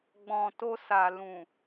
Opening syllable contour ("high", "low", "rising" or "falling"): low